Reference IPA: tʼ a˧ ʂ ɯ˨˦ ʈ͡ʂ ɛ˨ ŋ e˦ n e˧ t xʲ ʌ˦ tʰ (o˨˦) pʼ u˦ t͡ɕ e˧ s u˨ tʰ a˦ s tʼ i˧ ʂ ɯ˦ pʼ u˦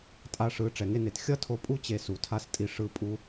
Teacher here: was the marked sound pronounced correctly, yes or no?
no